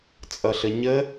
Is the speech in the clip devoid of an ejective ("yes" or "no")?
no